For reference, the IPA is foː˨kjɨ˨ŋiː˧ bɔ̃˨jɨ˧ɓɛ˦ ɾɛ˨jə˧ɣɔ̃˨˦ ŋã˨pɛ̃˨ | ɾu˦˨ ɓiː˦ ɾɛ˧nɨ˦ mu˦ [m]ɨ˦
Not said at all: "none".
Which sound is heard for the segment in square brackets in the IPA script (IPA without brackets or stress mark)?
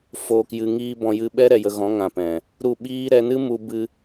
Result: b